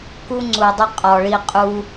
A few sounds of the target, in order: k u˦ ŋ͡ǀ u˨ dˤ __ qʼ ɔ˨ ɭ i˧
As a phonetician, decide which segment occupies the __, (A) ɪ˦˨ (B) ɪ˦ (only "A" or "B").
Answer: B